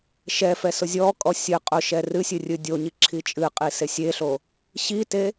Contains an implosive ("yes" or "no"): no